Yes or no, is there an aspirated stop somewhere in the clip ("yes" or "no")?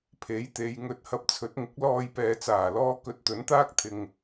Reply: yes